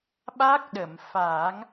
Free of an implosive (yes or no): no